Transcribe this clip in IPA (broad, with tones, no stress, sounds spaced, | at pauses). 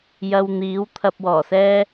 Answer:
j ɐ˧ w n̪ iː˨˥ w t̪ʰ ɐ˨ p̚ w ɔː˨˩ s ɛː˧